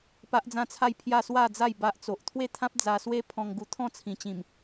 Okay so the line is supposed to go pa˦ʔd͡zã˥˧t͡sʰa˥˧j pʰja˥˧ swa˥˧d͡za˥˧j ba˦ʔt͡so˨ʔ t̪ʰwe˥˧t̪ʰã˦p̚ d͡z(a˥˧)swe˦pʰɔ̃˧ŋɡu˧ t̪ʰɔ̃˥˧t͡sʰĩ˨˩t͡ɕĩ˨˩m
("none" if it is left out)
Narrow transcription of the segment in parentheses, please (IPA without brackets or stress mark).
a˧